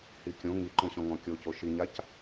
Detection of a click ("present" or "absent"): present